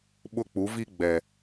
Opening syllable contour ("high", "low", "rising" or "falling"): high